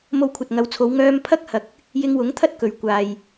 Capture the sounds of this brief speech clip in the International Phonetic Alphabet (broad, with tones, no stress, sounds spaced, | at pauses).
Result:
m o˧ w kʷʰ ɐ˨ t̚ ŋ ɐ˨˧ w t͡sʰ o˨˧ w ŋ œː˧ m pʰ ɐ˥ k̚ h ɐ˨ k̚ | j ɪ˧ ŋ w ʊ˨˥ ŋ t̪ʰ ɐ˥ t̚ k ɵ˨ ɥ kʷ aː˨ j